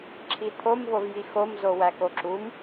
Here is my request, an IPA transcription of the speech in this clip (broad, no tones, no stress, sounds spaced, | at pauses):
ǁʰ i t̪ʰ o m v o v j i x o m z o w æ k o ǁ u m